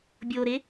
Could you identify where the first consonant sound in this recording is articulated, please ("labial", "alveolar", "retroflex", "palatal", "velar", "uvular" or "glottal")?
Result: labial